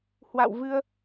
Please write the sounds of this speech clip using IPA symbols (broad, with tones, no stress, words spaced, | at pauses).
hwa̰˧˨wvɨ˧ə̯